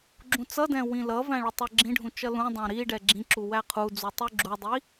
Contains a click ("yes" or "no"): yes